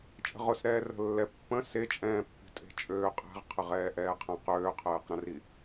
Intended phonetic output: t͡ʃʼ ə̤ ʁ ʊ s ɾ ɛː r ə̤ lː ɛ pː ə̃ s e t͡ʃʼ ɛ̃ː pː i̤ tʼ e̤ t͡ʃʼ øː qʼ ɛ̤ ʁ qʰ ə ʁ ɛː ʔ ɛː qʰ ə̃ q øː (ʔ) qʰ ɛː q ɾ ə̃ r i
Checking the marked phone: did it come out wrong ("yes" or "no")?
yes